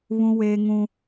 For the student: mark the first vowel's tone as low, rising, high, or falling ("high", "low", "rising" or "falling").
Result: high